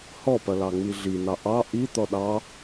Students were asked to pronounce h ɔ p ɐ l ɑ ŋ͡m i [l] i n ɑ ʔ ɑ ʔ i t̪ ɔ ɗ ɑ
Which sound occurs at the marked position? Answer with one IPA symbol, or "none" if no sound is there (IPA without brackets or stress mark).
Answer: ɮ